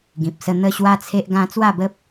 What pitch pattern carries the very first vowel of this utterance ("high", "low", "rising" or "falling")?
low